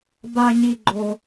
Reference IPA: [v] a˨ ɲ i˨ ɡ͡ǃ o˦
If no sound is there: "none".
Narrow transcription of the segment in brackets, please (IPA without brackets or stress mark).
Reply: b